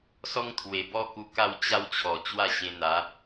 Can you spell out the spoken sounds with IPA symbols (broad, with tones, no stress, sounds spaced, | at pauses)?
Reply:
s ɔ˦ ŋ t̪ʰ w e˨˩ b ɔ˦ k u˧ k a˥˧ w t͡ɕ a˦ w t͡ɕʰ ɔ˨˩ t͡ɕ w a˥˧ ɕ ẽ˧ n̪ a˨˦